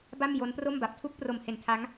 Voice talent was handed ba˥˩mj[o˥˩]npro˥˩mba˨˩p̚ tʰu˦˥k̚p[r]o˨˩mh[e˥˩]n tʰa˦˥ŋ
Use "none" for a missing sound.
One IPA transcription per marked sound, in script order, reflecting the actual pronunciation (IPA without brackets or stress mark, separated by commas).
o˦˥, r, e˩˦